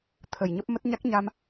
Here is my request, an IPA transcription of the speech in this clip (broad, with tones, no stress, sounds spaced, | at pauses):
t̪ʰ ə˨˩ j ɲ ə˦˥ p̚ m ə˦˥ t̚ ɲ a˦˥ k̚ ɲ a˧ m